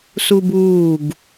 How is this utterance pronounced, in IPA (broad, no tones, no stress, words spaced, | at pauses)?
subuːɡ